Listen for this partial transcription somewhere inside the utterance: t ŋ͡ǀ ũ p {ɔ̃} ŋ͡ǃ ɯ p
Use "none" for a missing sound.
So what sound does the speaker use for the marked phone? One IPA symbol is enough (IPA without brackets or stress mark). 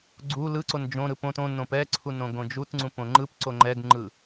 õ